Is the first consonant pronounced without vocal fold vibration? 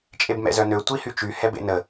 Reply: yes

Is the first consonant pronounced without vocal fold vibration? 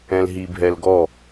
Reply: no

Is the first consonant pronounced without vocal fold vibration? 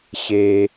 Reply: yes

